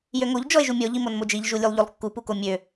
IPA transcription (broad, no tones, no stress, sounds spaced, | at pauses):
j ø ŋ o ʎ d͡ʒ ɔ e̯ ʒ u mʲ ɔ ʎ i m o n m o d͡ʒ i ʎ ʒ u lʲ u lˠ ʎ o lˠ kː u p u k o mʲ ø